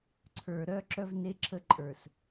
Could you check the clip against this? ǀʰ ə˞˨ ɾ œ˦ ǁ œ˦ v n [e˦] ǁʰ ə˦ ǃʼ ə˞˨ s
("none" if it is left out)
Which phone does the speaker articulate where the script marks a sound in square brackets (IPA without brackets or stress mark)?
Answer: e˦